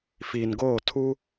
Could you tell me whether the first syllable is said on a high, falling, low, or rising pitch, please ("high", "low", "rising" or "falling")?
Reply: low